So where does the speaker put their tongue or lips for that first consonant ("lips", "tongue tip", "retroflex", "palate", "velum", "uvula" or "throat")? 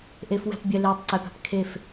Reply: throat